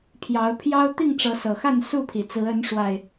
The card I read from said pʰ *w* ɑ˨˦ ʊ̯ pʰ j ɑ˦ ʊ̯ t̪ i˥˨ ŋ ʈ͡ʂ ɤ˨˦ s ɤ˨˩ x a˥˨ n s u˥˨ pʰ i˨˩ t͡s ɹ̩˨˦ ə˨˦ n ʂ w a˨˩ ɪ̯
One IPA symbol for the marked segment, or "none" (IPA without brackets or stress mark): j